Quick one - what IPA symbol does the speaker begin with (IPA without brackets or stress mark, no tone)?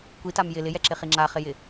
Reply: kʷ